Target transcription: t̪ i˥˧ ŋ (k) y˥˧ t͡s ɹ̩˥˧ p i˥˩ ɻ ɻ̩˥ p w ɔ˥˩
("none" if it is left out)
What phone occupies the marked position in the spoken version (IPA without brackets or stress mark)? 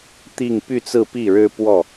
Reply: p